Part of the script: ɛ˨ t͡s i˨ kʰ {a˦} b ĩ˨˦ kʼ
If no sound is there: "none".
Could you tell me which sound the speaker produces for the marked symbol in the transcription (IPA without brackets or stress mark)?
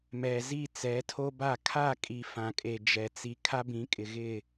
a˦